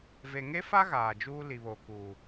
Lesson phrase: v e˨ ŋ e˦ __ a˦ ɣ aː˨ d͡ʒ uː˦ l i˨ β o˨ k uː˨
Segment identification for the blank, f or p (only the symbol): f